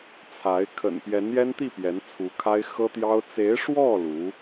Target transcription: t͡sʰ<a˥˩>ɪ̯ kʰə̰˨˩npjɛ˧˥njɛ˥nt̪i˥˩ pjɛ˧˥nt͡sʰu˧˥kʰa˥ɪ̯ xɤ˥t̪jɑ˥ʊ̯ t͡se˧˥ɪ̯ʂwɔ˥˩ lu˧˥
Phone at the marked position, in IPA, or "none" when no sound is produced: a˧˥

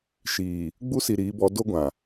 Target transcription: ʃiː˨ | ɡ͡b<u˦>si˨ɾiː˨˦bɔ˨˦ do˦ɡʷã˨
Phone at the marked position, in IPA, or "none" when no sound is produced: u˦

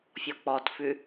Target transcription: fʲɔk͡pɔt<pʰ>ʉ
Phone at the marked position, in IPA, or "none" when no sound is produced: f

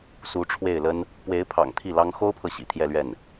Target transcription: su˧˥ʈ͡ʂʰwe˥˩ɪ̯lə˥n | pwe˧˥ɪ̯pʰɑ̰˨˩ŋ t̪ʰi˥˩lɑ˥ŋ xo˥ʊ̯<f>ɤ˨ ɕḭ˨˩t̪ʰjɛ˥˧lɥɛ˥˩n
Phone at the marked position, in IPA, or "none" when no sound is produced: pʰ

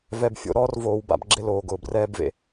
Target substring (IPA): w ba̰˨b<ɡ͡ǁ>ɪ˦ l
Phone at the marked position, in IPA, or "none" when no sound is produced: ɡ͡ǁ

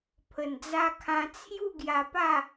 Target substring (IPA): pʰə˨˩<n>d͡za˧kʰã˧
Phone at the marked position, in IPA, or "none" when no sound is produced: n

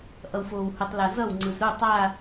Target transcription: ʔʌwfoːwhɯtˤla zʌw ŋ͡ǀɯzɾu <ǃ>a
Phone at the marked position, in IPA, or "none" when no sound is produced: tˤ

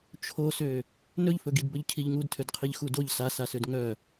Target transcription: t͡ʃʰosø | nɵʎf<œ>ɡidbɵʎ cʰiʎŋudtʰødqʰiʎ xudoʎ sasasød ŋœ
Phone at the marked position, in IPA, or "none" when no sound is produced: ɵ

